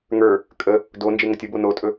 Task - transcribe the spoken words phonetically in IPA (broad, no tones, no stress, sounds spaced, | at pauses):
ŋ ə˞ | kʼ ə | d o n d͡ʒ e ŋ ə tʲ ə b o n o tʼ ɵ